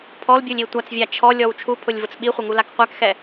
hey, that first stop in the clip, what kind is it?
aspirated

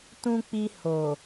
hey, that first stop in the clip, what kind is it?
plain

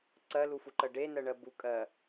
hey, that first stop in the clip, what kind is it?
click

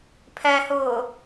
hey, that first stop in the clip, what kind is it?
aspirated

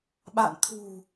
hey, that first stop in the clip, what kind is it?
implosive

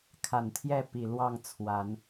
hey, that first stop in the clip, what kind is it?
aspirated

